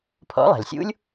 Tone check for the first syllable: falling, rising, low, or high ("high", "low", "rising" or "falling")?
rising